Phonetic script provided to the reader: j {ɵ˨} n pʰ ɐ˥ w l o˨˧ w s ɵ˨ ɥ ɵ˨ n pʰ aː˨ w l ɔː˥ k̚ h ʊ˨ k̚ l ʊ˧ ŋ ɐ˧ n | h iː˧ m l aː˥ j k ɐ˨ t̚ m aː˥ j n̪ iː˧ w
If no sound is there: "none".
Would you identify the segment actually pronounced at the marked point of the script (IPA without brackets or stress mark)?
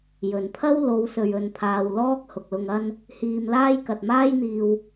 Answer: ɵ˨